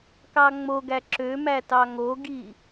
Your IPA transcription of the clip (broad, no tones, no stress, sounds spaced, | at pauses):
k ɑ ŋ͡m o ɡ æ ǁ ø m æ t ɑ ŋ o ɡ i